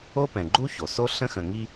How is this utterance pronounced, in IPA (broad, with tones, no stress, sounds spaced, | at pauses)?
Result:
o˥ p ɛ̃˨ ɡ͡ǃ u˥ ç o˩ s o˥ ɬ ə̃˥ x ə̃˨ ŋ i˦